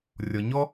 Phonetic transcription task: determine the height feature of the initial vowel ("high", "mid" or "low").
mid